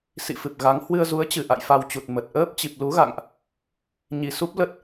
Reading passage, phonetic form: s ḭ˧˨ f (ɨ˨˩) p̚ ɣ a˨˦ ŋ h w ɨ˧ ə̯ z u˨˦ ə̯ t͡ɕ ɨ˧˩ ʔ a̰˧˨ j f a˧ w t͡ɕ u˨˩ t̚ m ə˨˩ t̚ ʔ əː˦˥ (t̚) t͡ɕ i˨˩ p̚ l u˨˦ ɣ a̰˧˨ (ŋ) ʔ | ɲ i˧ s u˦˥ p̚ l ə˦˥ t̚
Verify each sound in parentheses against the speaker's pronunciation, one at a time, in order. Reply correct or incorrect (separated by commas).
correct, incorrect, correct